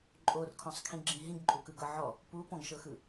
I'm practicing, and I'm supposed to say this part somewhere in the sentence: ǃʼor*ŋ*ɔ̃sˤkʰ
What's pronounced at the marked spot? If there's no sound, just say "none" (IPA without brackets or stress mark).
kʰ